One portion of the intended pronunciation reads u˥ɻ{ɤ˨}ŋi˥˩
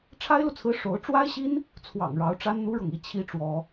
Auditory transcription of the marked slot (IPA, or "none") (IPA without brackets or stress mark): ɤ˨